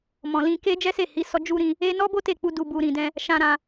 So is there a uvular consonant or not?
no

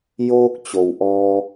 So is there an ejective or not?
no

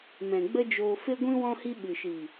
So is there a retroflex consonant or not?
no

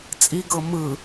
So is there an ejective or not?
yes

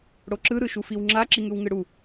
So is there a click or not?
yes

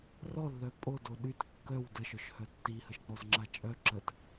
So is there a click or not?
yes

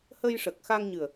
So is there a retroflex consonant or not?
yes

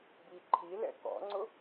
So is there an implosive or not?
no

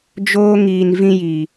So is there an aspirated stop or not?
no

